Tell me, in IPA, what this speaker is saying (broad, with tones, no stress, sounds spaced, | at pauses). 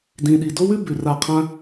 d ĩ˨ ɗ i˨ d o˦ w ʉ˦ b ʉ˨ r a˧ qʰ ã˦